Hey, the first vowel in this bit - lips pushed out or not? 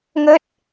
no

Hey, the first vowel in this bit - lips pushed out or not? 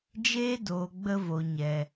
no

